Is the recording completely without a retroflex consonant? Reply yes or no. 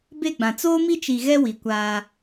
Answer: yes